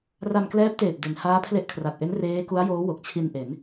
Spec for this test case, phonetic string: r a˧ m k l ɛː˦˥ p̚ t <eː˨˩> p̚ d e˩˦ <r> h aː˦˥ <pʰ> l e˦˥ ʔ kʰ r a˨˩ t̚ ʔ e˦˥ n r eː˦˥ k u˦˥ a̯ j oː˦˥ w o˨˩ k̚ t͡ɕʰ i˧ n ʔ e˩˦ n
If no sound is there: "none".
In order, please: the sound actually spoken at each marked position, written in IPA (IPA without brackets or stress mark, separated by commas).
eː˨˩, n, pʰ